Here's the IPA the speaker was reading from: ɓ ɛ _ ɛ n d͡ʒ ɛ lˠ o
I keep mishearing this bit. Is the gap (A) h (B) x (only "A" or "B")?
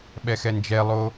B